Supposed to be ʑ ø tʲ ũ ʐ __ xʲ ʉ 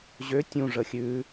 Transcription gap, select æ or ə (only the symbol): ə